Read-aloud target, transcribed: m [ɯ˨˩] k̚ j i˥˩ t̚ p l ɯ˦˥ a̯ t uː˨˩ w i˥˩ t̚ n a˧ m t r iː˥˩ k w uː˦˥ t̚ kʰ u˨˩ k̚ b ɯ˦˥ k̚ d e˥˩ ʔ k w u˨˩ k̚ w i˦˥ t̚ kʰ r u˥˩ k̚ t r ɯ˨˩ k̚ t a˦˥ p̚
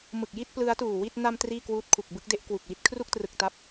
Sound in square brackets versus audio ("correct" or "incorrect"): correct